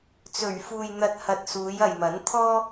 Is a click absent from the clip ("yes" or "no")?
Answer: yes